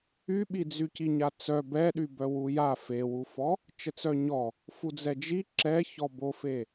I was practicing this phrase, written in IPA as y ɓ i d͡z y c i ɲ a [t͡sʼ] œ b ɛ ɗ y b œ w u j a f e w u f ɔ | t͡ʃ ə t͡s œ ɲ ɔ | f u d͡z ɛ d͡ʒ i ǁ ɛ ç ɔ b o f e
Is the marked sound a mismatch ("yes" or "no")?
yes